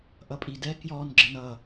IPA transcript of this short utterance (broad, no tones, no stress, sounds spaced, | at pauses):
ʔ ʌ pʼ i d ɛ k j ɔ n ɡ͡ǁ ə n ʌ